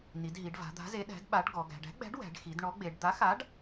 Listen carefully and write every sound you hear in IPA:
n i˩˧ d ɦ i˩˧ ɖ v a̤˩˧ d̪ a̤˨˥ z e˨˥ ɗ æ̤˨˥ d ɓ a˨˥ ɖ ɡ ɔ˩˧ ɡ æ̤˩˧ ɖ æ̤˨˥ ɡ͡b æ̤˨˥ ɖ w æ̤˩˧ ɖ x i˩˧ d ɳ ɔ˨˥ ɡ͡b e˩˧ ɖ d̪ a˨˥ x a˨˥ ɖ

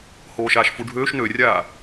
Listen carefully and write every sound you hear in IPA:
h oː ʃ aː ʃ f u ɖʱ øː ʃ n ø rʲ aː

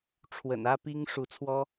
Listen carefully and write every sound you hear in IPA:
ʈ͡ʂʰ w ə̰˨˩ n ä˥ p i˥ ŋ ʂ u˧˥ t͡sʰ w ɔ˥

